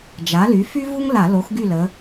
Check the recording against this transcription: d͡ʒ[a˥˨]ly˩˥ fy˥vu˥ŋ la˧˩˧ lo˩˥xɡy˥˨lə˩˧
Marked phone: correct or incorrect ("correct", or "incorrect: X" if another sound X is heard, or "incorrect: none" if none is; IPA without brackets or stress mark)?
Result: incorrect: a˩˥